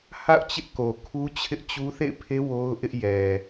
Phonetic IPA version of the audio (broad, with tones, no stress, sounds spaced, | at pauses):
h a̰˦˨ ʊ̯ t͡ɕ ɪ˦ ʔ k o˨ kʰ u˦ t͡ɕʰ ɪ˦ ʔ t͡ɕ u˦ θ ḛ˦˨ ɪ̯ pʰ e˦ w o˦ ʊ̯ ʔ ɪ˦ ʔ j ɛ˨